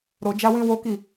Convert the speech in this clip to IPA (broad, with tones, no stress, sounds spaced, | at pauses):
ɾ o˧ d͡ʒ a˦ w ĩ˦ w o˦ k i˦˨